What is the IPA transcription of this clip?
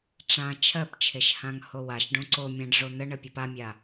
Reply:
ʈ͡ʂã t͡ʃʰɜpt͡ʃʰeʃ hãŋhowaʃɖõ ǀomʲãɖ ʐon̪əɳə pʲopamʲa

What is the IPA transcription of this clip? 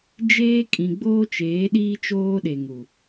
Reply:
d͡ʒeː˦kʼĩ˨ ɡ͡boː˦t͡ʃeː˨˦ɗiː˦ t͡ʃoː˦ɗe˨ ŋu˨

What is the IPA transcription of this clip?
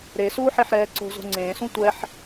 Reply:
ɾesuːħeħɾɛː ǀo̤zo̤ ŋ͡ǀẽːsũ tʷɛħ

